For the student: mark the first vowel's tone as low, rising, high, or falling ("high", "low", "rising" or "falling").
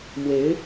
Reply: rising